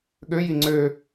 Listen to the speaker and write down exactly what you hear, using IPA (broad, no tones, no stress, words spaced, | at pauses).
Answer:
ɠøji ŋ͡ǀø